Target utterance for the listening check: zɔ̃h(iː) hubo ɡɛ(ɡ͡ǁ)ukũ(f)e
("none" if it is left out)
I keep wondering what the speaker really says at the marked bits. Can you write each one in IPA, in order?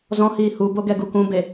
iː, ɡ, b

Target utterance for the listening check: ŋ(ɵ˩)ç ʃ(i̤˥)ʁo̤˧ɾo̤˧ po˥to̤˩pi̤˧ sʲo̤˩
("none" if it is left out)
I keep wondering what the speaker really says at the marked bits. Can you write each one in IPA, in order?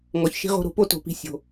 ɔ˩, i̤˥

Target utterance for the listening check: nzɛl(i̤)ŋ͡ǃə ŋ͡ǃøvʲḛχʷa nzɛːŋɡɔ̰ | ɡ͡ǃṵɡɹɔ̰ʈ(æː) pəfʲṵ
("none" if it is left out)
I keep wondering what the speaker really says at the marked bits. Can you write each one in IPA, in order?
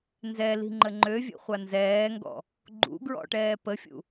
i̤, ɛː

